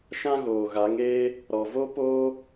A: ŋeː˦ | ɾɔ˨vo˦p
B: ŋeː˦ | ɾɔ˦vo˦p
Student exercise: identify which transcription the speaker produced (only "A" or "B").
A